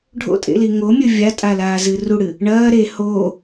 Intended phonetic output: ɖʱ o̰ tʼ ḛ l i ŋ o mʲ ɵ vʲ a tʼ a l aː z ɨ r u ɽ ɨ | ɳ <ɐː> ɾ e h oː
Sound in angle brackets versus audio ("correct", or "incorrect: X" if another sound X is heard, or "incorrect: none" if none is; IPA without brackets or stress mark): correct